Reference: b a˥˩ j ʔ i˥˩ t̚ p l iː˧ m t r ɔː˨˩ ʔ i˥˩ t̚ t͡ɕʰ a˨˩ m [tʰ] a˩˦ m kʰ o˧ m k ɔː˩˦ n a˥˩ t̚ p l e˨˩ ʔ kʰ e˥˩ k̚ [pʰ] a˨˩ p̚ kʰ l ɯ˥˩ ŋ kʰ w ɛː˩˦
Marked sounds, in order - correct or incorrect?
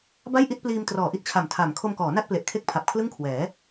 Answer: correct, correct

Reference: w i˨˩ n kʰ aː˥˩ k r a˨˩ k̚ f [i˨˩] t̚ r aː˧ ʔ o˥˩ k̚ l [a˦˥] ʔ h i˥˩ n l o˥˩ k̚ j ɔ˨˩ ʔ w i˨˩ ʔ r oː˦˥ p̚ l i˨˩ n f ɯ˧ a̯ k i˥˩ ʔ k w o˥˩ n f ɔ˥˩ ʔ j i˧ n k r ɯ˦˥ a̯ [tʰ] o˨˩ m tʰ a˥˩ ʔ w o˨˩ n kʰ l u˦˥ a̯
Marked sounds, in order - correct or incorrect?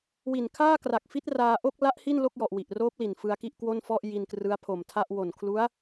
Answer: incorrect, correct, incorrect

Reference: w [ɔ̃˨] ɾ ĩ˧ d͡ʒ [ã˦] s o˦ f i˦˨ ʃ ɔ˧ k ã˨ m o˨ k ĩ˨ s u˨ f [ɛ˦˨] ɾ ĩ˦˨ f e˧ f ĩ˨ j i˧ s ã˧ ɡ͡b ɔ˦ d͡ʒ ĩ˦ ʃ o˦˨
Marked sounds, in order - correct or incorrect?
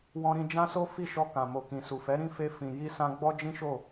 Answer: incorrect, correct, incorrect

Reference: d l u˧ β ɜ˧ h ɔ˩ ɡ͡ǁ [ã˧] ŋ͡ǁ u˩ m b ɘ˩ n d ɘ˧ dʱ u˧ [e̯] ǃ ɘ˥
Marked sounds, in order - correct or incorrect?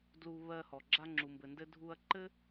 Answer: incorrect, incorrect

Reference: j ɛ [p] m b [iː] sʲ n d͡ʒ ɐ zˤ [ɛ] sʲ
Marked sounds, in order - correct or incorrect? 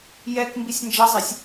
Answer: incorrect, incorrect, incorrect

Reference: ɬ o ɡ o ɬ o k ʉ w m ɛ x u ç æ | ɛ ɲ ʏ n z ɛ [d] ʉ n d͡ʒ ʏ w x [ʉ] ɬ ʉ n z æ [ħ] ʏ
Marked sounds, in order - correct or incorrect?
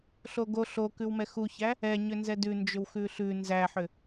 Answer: correct, correct, correct

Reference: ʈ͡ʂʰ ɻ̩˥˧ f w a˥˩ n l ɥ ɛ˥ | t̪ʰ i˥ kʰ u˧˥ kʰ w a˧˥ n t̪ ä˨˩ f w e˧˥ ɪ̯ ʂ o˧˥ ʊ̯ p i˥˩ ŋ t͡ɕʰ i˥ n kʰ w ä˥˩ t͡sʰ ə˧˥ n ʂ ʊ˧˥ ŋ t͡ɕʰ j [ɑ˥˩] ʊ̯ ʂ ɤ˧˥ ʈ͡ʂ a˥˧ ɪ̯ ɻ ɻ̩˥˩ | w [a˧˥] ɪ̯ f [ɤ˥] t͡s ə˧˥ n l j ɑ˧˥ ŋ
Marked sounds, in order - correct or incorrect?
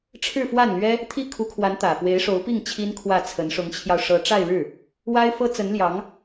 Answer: incorrect, incorrect, correct

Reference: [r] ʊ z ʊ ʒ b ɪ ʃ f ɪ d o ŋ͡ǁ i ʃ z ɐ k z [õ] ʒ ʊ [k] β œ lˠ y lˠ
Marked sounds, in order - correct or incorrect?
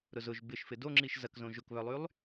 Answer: incorrect, correct, correct

